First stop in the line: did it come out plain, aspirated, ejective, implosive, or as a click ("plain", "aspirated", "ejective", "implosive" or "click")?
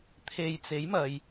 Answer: aspirated